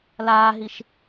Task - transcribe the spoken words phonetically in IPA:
laːɦiʃ

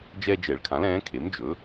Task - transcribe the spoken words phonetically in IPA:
d͡ʒɛː˦d͡ʒɛ˨˩˦ɭkʰã˩˥l ɛ̃ː˩˥kʰe˩˥md͡ʒɵ˩˥

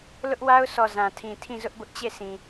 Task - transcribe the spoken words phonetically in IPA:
lʊ˦ʔwa˦ʊ̯sʰɔ˨ zã˨tʰĩ˨ tʰĩ˦˨zʊ˦ʔbʊ˦ʔ t͡ɕe˦˨sʰĩ˨

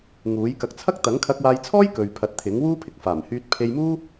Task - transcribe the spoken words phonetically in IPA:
ŋuː˨˥j kɐ˨˥k̚t͡sʰɐ˥k̚ t̪ɐ˨˥ŋkʰɐ˧k̚waː˧jt͡sʰɔː˥j kɵ˨ɥpʰɐ˨˥t̚t̪ʰɪ˨˥ŋwuː˥ pʰɪ˨k̚faː˨˩mhyː˧t̚ pʰe˧jmuː˥

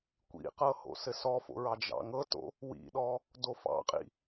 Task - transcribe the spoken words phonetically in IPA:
kʷḭqɤ ho̰sɘsɔfo̰ ɹɑd͡ʒɑ̰ŋɤto̰ | wḭɗɔ | dofɑ̰qʼḭ

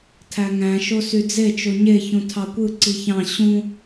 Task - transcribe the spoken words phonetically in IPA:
tʰæŋæ̃ ʃosyd͡ze t͡ʃoɲe çũtʰɑkʷɯ ǀiçɑ̃ ɕũ

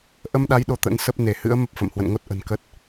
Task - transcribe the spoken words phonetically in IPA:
ʔə˧mɗa˨˦j ɗo˧t̪ə̰˧˥n sə˦˥p̚ ne˧˩hɨ̰˧˥ə̯ mə˦˥p̚fə̰˧˨mhwə̰˧˨nŋo˦˥t̚ ʔə̤˨˩nkə˦˥t̚

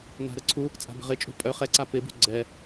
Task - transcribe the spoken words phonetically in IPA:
na̤ɾəǀʰu | t͡sʼa̤bə̤ʁɪt͡ʃʼṳ pʼœ χɛǀa pɪbṳ ɡ͡ǀɛ

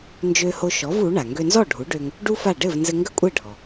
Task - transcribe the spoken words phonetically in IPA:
nd͡ʒø˧ho˧ʃɔ˩˥v u˩˥ɳa˩ ŋɡø˧nzɔ˥˩ɖʱu˩˥ɖø˧ŋ | ɖu˥fa˥˩ ɖɘ˥˩v nzɘ˧ŋɡə˥kʷʼɘ˥˩ ɖʱɔ˩

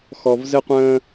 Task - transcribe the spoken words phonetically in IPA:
xɔ˩vzɘ˧qʷə̃ː˧

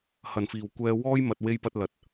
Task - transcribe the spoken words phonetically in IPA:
hɐ˨˩nfiː˨˩wkʷɛː˧ wɔː˥jmɐ˨t̚ we˧jpɐ˧t̚ lɐ˨t̚

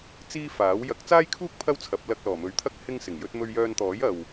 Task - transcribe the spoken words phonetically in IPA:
t͡siː˥faː˨˥w jɐ˨˥k̚t͡saː˥jkʰuː˥k̚ pʰɐ˥wt͡sʰɐ˨˥p̚ lɐ˧k̚lɔː˨˩mɵ˨˧ɥt̪ʰɐ˥k̚ hɪ˥ŋsɪ˨˩ŋjɵ˥t̚ mɵ˧ɥjœː˧nt̪ɔː˨˥j ɐ˨w

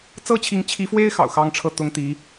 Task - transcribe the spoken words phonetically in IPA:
t͡sɤ˥t͡ɕʰi˧˥ŋt͡ɕʰi˧˥fwe˥ɪ̯ xɑ̰˨˩ʊ̯xɑ˥ŋʈ͡ʂʰɤ˥˩ t̪ʊ˥ŋt̪i˧˥

